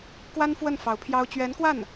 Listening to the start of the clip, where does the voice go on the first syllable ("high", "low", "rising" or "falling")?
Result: high